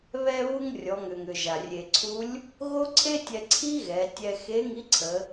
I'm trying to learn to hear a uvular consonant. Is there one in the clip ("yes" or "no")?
no